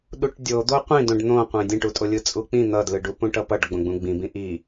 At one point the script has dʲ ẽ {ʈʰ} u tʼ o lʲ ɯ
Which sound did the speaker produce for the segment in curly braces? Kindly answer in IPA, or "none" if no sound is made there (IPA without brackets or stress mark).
ʈ